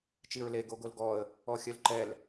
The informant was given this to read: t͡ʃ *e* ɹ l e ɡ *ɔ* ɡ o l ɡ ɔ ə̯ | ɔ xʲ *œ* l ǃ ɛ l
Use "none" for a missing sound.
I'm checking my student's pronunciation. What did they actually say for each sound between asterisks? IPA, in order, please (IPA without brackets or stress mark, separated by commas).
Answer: i, o, œ